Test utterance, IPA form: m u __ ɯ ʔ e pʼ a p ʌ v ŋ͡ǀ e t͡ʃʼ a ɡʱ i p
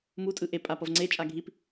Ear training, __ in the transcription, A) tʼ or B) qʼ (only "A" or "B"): A